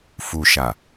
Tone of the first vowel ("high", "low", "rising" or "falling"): low